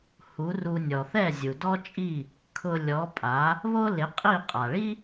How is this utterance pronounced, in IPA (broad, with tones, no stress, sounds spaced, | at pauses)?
h u˩˥ r u˧ nʲ ɔ˩ θ ɛ˥˩ zʲ u˩ d ɔ˥ t͡ʃʼ i˥˩ | kʰ ʊ˧ lʲ ɔ˩˥ pʼ a˩˥ | β o˥ l ɪ˩˥ qʼ i˥˩ qʼ a˩ ɭ i˥